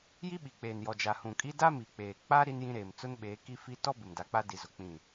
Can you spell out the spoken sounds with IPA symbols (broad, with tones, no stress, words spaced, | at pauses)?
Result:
ji˦ɓi˨k͡peː˨njɔ˨ d͡ʒa˨hũ˨kʼi˦ da˦mi˨k͡peː˨ k͡pa˦ ɾi˦njĩ˦ɾeː˨m t͡sʊ˦nɓeː˨˦ ki˦fi˦ tɔ˦ bɪ˨mda˨k͡pa˦ di˨zʊ˨ k͡pĩ˦˨